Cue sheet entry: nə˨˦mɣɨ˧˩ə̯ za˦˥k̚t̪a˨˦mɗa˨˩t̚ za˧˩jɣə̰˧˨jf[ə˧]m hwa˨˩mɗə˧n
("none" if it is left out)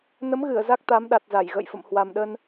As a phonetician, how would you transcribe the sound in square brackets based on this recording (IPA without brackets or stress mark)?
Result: ə̰˧˨